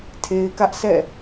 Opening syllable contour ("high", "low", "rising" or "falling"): low